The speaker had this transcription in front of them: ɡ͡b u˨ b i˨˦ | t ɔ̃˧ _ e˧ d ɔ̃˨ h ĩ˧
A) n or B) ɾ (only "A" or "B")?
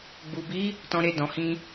B